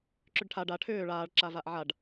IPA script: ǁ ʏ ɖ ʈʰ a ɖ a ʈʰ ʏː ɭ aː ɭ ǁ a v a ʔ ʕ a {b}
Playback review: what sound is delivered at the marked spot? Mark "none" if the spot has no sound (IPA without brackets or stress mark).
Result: ɖ